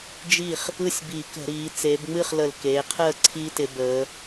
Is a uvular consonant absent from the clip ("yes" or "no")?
no